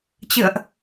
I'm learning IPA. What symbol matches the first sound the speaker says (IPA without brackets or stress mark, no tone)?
t͡ɕ